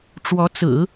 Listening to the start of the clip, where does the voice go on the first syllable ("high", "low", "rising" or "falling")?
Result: rising